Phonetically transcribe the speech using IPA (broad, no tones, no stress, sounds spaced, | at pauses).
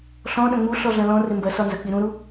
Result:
ɬ ɔ̃ ɗ ɐ̃ ŋ͡m u ɬ ɔ ɮ ɐ̃ l ɔ̃ r ɪ m b ɐ s ɒ n z ɐ k͡p i ɾ ũ ɾ u